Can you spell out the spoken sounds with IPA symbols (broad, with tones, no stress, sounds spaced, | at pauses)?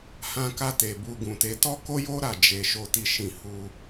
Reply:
h ã˧ k a˧ t e˨ b u˧ ɡ ũ˨ t e˧ t ɔ˦ k o˦ j o˦ ɾ a˦˨ d͡ʒ e˧ ʃ o˦ t i˦ ʃ ĩ˦˨ h u˧